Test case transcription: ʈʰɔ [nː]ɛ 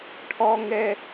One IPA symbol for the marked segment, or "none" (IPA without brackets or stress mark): ŋ